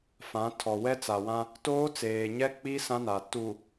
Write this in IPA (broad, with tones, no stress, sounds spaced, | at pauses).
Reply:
f ã˨˦ tʰ ɔ˨ w ɛ˦ t͡s a˨ w ã˦ | t oː˦ t͡s eː˨ ɲ ɛ˦ k͡p i˦ s ã˦ n a˨ t u˨